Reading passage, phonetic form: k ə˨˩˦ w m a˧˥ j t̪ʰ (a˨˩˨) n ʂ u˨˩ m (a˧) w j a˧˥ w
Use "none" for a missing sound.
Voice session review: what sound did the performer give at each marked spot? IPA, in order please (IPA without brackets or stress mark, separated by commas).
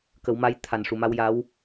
a˨˩, a˧